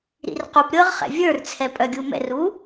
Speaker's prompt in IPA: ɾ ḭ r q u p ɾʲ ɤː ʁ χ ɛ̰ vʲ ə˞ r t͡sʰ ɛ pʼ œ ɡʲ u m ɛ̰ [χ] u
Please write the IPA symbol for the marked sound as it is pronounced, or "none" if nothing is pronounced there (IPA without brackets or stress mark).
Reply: r